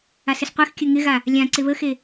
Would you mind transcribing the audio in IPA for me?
a s ɪ s qʷ e x kʲ ɵ ŋ ɪ ɣ a | lʲ ã ǀ ɪ β ə x e

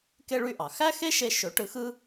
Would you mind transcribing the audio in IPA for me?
k e˥ ɭ y˥ ʔ ɑ˩ x æ˥ x e˥ ʃ e˧ ʃ ø˩˥ ʈ ɯ˧ x ɯ˥

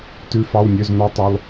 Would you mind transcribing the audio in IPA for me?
t ʉ˧˥ f ɑ˧˥˧ w nʲ ø˧˥˧ z n ɔ˧˥ tˤ ø˧˥˧ lˠ

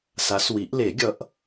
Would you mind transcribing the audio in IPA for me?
s a˨˦ s w i˨˩˦ ʔ l e˨˩˦ ɡʲ ʌ˨˦ ʔ

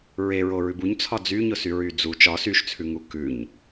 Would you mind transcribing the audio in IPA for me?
ɹ e ɹ o ɹ ʉ b u ɲ t͡sʰ ɒ d͡z y ɲ ʊ s y ɹ y d͡z u t͡ʃ ɒ s y ʃ t͡sʰ ʉ ŋ u k ʉ ɲ

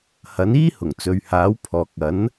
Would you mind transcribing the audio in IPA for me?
h ɐ˨˥ n iː˥ h ʊ˨˩ ŋ t͡s ɵ˨ ɥ h aː˨˥ w pʰ ɔː˨ k̚ ɐ˨˥ n

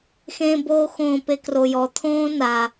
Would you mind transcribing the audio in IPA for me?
x ẽ b oː x õː p e k r o j ɔ t̪ʰ õː n a

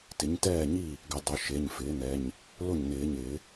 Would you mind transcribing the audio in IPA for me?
t ɪ˩˥ ɲ t ɛː˥˩ ɲ i˥˩ | ɡ ɪ˩˥ dˤ ʊ˩˧˩ ʃ e˩˧˩ ɲ f ɪː˩˥ n ɛ˩˧˩ ɲ | l ʊ˥˩ ɲ n ɪː˨˩˦ ɲ ɪː˨˩˦

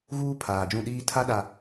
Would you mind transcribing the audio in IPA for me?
ɣ uː˦ pʰ aː˨ d͡ʒ ũ˦˨ ɗ iː˦ tʰ a˦ ɗ a˨

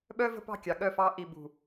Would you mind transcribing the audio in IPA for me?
ɓ œ˦ v ə̤˦ p ɑ̤˦˨ kʲ ɑ˨ ɠ œ˦˨ f ɑ˦ ʔ i˨ b ṳ˨

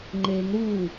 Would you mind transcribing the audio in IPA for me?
ŋ͡ǃ e ŋ ɾ u

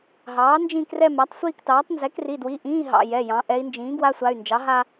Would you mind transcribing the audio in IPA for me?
ɦ ɑː˩˥ n d͡ʒ ĩ˥˧ k r ɛ˥˧ m a˩˥ tˤ sʷ iː˥˧ k t ɑː˩˥ tˤ n z ɛ˩˥ k r i˩˧˩ d w i˩˧˩ ʔ ĩː˧˥˧ ɦ ɑ̰˩˧˩ j ɛ˩˧˩ j ɑ̃˩˧ ʔ ɛ˩˧ i̯ n d͡ʒ ĩː˩˥ ɡ w a˧˥˧ sʷ a˩˧˩ y̯ n d͡ʒ ɑ˩˥ ɦ a˥˧

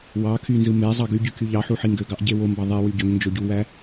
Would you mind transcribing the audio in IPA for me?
w ɑ kʰ y n z ɯ m e zˤ ɑ ɡ y ɟ y kʰ y ʎ ɑ ħ u ħ i ŋ ɡ ø ɡ ɑ ʔ ɟ e w o m b ɑ ðˤ e w y ɟ ø ŋ n d͡ʒ o ɟ u w æ

